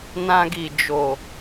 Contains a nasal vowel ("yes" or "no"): yes